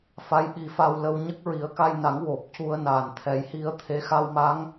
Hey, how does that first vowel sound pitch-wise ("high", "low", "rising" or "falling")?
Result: rising